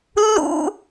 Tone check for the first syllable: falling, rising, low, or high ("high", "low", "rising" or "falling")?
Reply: high